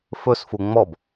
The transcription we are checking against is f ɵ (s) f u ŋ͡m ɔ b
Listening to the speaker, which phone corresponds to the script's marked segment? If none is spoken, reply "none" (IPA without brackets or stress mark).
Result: s